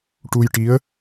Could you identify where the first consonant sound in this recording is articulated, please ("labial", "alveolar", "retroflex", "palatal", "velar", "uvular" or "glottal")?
retroflex